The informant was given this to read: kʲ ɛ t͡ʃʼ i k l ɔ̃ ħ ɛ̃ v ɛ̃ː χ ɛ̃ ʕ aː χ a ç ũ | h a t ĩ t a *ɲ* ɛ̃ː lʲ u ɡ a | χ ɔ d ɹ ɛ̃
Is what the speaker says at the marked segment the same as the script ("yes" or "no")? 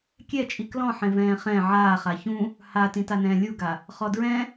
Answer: no